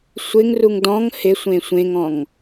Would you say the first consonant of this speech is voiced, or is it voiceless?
voiceless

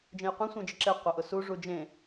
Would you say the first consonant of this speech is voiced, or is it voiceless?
voiced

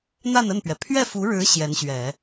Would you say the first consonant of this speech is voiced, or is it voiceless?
voiced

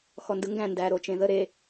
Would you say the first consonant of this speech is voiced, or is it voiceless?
voiceless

